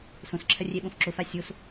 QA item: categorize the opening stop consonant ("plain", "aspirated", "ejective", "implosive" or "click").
click